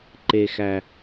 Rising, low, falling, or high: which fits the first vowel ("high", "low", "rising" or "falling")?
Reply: low